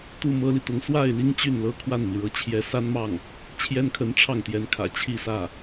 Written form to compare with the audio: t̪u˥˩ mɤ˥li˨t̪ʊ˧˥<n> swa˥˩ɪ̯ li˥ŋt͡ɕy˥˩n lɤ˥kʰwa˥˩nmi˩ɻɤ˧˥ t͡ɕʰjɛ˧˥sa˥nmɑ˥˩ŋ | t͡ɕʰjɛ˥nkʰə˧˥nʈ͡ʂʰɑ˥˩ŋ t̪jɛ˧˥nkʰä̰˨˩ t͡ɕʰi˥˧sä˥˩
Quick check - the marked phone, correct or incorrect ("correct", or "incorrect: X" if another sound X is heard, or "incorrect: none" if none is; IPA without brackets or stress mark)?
incorrect: ŋ